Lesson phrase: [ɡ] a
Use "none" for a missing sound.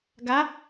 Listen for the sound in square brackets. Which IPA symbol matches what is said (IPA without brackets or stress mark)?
ɡ